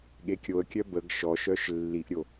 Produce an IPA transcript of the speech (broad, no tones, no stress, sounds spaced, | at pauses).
ɠ e kʲ o ə̯ kʲ œ b ə ɡ ʃ ɔ ʃ œ ʃ lː i ʔ ɾʲ o